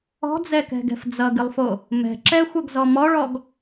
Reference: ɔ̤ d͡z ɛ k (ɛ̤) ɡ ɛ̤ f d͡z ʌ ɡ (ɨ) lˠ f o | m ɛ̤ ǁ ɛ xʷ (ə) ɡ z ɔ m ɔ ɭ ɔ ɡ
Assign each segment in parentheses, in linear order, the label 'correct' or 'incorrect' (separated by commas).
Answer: correct, correct, incorrect